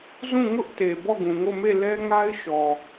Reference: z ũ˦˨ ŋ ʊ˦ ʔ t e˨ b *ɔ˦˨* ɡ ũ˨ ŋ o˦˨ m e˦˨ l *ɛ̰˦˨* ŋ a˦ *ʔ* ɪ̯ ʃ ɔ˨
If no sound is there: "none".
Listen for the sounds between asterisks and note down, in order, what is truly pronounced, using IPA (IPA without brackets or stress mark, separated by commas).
ɔ˦˨, ɛ˦, none